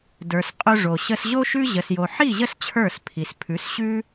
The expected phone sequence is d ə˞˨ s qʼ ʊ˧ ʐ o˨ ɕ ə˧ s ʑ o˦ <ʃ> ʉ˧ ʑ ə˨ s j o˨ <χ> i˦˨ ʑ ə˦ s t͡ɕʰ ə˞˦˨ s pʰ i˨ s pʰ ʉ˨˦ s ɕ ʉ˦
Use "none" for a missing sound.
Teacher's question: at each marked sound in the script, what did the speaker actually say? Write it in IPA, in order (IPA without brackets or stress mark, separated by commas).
ʃ, ħ